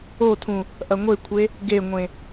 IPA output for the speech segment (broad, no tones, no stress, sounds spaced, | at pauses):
o tʰ ũ | ʔ ɐ ŋʷ e kʷʰ e | ɡ e ŋʷ ẽ